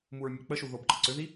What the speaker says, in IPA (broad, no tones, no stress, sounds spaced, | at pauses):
m u ɹ mʲ ʊ k͡p ə ʃ u ð o b ǃ ə ǀ ʏ ð i